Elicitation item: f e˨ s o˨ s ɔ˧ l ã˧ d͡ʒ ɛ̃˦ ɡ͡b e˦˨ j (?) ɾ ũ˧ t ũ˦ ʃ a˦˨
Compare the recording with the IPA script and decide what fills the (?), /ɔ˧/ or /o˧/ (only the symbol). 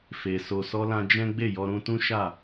ɔ˧